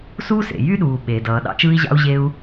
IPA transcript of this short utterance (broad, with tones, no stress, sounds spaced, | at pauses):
s uː˦ s ḛ˨ j y˦ ɗ uː˨ ɓ eː˨ d ʌː˨ ɗ ɑ̰˧ t͡ʃ ɯː˧ i̯ ʑ ɑ̰˧ u̯ ʑ e˧ u̯